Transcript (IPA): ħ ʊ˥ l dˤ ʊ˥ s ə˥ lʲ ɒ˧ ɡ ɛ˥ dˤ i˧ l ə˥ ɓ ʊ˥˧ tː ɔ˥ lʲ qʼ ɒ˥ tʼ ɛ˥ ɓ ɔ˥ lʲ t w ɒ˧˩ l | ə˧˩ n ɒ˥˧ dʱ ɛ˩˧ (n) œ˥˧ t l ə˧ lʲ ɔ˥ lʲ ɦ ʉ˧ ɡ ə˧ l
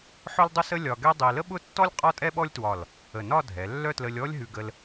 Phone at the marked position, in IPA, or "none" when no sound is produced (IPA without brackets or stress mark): lː